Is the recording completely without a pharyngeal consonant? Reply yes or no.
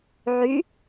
no